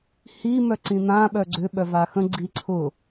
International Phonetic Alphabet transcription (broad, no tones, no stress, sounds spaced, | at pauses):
h i m œ ǀ ĩ n̪ ã ɓ œ ɡ͡ǀ ʏ ɓ œ v a x ə̃ ɡ͡ǀ i ǀʰ ʊ